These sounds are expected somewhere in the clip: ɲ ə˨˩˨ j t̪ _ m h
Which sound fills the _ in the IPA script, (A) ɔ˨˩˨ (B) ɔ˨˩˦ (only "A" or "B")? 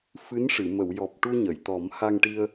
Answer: B